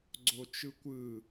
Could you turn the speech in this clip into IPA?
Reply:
ɡ͡ǀot͡ʃɯkʷɯ

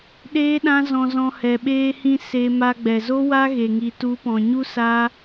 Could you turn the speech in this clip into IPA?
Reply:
ɗeː˦ɗã˦zɔ̃˧zɔ̃˧ hɛ˨ɓeː˧ hĩ˧ se˧ ma˧ɡ͡bɛ˨zo˦ wa˦ɣe˨ ŋi˨tu˨˦pɔ̃˨ɲu˦ sa˦

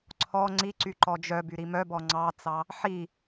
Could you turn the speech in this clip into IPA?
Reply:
ǀʰɔ ŋ͡ǀiǀy ǃɔd͡ʒœby ɾimœbɔ ŋ͡ǀɑt͡sɑ | ħi

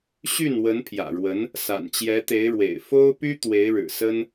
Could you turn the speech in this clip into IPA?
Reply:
ɕy˥˩n wə˧˥npʰjä̰˨˩ɻwə˧˥n | sa̰˨˩nt͡ɕjɛ˧˥t̪e˧˥ɪ̯ɻwḛ˨˩ɪ̯ fo˥ʊ̯py˥ t̪we˧˥ɪ̯ɻɻ̩˨˩sə˥n

